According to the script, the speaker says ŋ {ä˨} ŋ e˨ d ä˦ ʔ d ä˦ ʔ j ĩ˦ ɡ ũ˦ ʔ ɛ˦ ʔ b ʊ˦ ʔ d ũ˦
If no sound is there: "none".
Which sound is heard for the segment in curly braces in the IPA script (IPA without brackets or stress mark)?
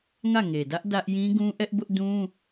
ä˦˨